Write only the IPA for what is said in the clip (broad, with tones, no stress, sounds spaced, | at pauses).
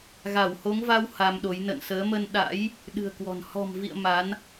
ɣ a˧˩ w h o˨˦ ŋ v a˧ w h a˧ m ɗ o˨˦ j n ə̰˧˨ n s əː˨˦ m ə˧ n ɗ a̰˧˥ j | ɗ ɨ̤˨˩ ə̯ k w ɔ̤˨˩ n h ɔ̤˨˩ m v ḭ˧˨ ə̯ m a˨˦ n